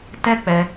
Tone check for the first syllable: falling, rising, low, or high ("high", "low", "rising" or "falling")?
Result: high